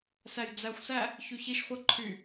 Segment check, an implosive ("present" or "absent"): absent